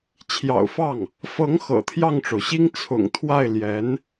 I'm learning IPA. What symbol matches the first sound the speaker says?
t͡ɕʰ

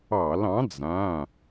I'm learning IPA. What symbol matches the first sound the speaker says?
ɑ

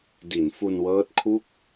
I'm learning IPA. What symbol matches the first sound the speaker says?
d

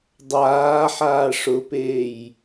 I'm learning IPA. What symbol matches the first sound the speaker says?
dˤ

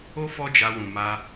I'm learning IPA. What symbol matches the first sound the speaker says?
o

